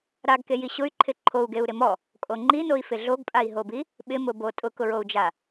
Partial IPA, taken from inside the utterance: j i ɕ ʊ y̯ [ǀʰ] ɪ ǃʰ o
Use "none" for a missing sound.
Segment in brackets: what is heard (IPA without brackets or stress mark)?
ǃʰ